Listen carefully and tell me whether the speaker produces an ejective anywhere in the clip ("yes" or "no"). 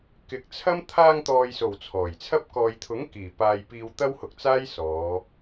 no